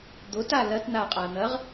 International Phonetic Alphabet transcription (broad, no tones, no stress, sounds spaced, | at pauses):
d̪ o t a l ɐ t n̪ a qʼ a n̪ ɐ ʁ